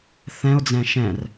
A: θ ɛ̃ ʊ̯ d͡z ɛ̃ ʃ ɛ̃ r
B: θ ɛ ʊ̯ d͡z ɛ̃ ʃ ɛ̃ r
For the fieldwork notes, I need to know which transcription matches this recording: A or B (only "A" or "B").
A